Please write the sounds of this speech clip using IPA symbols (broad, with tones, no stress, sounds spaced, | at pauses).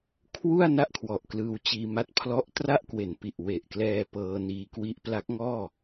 kʰ w u˥˩ a̯ n a˥˩ ʔ kʰ w ɔ˨˩ ʔ k l ɯː˧ w t͡ɕ iː˧ m a˦˥ t̚ pʰ l ɔ˦˥ ʔ t r a˥˩ ʔ k w e˩˦ n p i˨˩ ʔ w e˨˩ ʔ k l ɛː˧ p ɤː˧ n iː˧ k w i˦˥ ʔ p l a˦˥ k̚ ŋ ɔː˥˩